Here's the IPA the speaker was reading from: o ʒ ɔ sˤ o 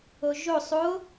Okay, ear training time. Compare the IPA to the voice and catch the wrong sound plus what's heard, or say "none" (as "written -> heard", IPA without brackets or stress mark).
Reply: ɔ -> o